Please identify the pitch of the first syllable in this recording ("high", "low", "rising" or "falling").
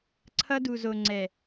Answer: high